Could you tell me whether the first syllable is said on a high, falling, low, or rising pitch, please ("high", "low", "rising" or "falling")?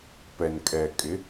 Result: low